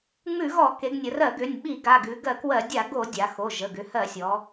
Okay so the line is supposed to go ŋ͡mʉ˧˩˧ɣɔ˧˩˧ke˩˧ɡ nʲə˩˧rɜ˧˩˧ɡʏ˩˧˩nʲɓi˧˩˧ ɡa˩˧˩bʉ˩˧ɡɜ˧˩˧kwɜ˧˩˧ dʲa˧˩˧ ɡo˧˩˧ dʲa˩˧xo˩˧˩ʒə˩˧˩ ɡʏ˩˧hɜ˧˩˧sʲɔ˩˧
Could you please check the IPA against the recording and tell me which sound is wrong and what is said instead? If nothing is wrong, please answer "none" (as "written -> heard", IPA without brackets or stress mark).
b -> ɡ